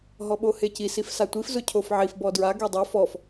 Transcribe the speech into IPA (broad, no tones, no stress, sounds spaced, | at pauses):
ɦ ɔ ɓ o h e c i s i f s a tʷ i f z ʊ cʰ o f ʕ i f b ɔ d ɹ a ɡ ɛ dˤ o f ɔ f